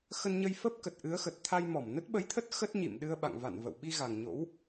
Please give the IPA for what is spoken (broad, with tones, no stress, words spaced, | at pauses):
xə˧nɲə˧jfə˦˥p̚kə˨˩t̚ ʔɨ˨˦ə̯xə˨˩t̚t̪ʰa˧j mɔ˧˩mnə˦˥t̚ɓə˨˦jt̪ʰə˦˥t̚ xə˦˥t̚ɲḭ˧˨m ɗɨ˧ə̯ɓa̰˧˨ŋ va̰˧˨n və̰˧˨w ɓi˧ɣa˨˩ŋ ɲo̰˧˥w